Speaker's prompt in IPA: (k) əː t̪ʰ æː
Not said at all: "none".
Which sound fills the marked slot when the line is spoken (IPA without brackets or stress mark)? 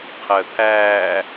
qʰ